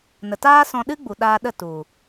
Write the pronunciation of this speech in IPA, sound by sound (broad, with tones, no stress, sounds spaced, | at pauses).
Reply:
n ə˨ t aː˦ s ɔ̃˧ ɗ ɨ˦ ɡ͡b u˨ ɗ aː˧ ɗ ə˦˨ t u˨